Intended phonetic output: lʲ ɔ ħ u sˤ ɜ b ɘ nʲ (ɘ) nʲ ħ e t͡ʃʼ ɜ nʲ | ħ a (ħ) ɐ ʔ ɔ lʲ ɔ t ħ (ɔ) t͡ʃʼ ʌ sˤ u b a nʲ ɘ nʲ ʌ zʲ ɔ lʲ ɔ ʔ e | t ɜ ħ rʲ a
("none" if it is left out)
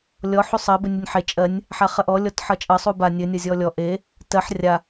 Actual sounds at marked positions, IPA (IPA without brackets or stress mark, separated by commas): ɘ, χ, ʌ